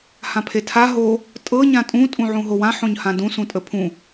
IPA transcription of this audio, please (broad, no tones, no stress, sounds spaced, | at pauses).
h ã pʰ e tʰ a ɦ o | tʼ ɤ ɲ ã tʼ ũ tʼ ũ ʕ ũ ɦ o w ã ħ õ ɲ h ã d ũ s ũ tʼ ə pʰ ũ